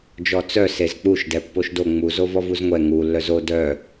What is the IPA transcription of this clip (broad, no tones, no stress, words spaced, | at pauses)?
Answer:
d͡ʒɔt͡sœ sezk͡puʃ dɛpːoʃdo ŋ͡mu zovɔvuzŋʷɛ ŋu lːœzo dœ